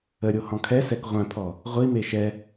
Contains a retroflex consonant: no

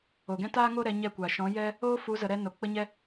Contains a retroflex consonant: no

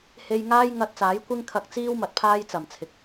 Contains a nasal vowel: no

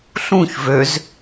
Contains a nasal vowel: yes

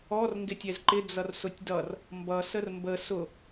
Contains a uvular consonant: no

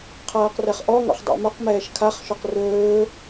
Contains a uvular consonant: yes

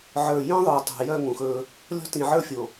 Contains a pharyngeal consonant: yes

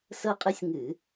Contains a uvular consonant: yes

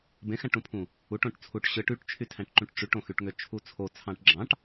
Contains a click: yes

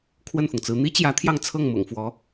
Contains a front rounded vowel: no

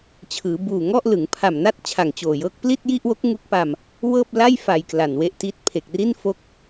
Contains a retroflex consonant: no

